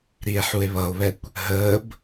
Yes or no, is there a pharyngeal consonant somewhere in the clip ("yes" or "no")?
yes